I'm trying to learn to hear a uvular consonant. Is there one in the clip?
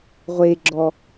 yes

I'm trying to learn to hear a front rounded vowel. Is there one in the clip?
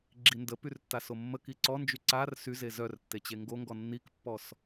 yes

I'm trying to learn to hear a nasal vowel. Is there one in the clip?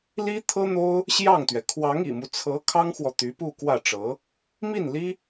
no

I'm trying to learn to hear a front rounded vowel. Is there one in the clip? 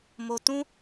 no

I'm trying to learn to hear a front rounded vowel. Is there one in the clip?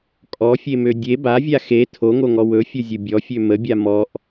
yes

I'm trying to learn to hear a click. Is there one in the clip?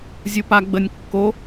no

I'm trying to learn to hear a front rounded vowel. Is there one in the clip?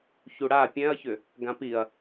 yes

